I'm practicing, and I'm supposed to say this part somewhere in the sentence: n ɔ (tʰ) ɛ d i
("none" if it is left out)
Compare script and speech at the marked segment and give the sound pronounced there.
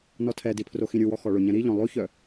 tʰ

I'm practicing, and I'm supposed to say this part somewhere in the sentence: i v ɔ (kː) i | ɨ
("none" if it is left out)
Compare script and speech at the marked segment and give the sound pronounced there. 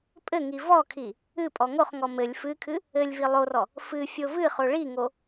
kʰ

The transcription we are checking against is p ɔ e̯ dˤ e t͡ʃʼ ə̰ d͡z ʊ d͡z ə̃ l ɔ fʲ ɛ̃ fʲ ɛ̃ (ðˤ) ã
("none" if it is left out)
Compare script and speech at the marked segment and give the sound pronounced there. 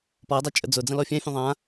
ðˤ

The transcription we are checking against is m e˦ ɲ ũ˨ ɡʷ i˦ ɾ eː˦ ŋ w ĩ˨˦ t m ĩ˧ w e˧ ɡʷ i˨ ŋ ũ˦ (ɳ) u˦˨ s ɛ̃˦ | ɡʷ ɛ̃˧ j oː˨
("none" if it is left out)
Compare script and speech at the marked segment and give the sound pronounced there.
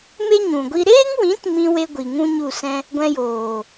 ɲ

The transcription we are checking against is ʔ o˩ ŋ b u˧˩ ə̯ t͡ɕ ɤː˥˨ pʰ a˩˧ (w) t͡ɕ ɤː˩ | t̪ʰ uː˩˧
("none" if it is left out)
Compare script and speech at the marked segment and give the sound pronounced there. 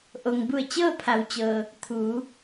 w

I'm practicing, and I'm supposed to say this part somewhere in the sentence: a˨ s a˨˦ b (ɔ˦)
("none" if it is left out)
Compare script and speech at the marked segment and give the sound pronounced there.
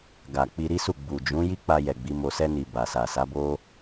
o˦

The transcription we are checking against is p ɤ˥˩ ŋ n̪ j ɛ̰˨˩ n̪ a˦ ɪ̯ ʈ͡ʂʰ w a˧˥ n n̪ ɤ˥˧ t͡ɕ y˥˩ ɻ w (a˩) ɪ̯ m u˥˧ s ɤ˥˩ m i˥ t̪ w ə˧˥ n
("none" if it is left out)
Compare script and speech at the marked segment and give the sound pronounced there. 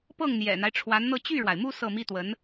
a˩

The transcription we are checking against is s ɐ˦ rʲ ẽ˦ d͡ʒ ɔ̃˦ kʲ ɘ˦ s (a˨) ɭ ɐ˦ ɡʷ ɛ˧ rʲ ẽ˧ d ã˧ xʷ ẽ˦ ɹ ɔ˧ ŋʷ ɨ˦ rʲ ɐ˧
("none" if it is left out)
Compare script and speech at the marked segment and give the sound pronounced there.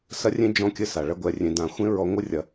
a˨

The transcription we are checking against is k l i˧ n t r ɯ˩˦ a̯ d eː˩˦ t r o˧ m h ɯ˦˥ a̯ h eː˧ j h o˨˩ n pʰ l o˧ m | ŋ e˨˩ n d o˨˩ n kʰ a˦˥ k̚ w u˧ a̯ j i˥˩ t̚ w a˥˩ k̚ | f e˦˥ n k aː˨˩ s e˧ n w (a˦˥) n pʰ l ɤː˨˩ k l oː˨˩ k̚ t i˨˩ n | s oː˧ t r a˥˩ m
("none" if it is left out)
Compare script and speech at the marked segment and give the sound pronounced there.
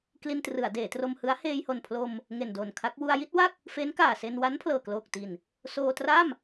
a˦˥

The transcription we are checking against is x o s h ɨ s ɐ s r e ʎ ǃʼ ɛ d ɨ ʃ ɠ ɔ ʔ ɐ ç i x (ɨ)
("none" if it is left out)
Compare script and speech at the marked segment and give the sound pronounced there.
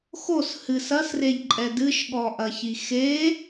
e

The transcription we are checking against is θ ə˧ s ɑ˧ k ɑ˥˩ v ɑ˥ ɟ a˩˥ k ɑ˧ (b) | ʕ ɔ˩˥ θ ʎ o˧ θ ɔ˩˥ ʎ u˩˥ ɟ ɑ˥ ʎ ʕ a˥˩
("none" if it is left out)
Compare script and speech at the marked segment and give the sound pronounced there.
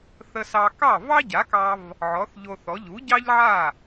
v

